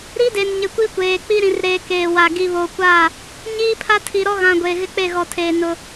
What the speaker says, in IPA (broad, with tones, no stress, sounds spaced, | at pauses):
ɾ i˦ d e˨ n ɲ ɪ˨ kʷ i˦ kʷ eː˨ k͡p i˦ ɾ ĩ˨ r ɾ eː˨ k eː˨ w a˨ ɡ i˨ β o˨ kʷ a˦˨ | ɲ iː˦ pʰ a˦ tʰ i˨ ɾ ɔ˦ ɣ ã˨ ɡʷ eː˨ ɣ ɪ˦ k͡p e˦˨ ɣ ɔ˨ tʰ eː˨ n ʊ˦